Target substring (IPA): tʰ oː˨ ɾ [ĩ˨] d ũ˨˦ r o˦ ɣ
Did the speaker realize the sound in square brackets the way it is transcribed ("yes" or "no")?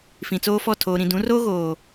yes